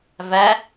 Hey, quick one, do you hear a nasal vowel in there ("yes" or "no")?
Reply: no